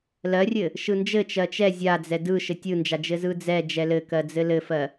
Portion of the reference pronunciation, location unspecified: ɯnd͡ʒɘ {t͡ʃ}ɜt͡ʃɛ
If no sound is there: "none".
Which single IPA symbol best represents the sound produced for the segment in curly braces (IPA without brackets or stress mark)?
t͡ʃ